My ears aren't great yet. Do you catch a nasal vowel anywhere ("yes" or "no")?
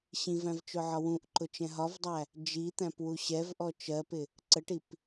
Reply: yes